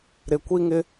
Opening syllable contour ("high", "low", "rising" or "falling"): low